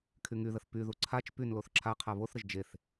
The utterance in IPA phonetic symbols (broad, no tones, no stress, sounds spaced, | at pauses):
kʰ y ŋ y ð ə θ p y ð u ǀʰ a t͡ʃ p y n l o θ ǁʰ a qʰ a β o θ ɾ ə ʒ d͡ʒ e θ